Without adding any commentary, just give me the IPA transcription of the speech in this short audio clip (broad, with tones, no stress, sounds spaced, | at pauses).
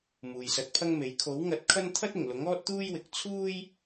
m uː˨ j s ɐ˧ t̚ pʰ ɐ˥ ŋ m e˨˥ j kʰ o˨˥ w ŋ ɐ˨˥ t̚ kʰ ɐ˥ n t̪ʰ ɐ˥ t̚ ɪ˨˩ ŋ l ʊ˨˥ ŋ ɔː˥ t̚ t̪ uː˥ j w ɪ˨˥ k̚ t͡sʰ uː˥ j